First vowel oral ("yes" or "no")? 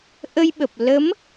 yes